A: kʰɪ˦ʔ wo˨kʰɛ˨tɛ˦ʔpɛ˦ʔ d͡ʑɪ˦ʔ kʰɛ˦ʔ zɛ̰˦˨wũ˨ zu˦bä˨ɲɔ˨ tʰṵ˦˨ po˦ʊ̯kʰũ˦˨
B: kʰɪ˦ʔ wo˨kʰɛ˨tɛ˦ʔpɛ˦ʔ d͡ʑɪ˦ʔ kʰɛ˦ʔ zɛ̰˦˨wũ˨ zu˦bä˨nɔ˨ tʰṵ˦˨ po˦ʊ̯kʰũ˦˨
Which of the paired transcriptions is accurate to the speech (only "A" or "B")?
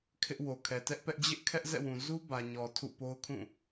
A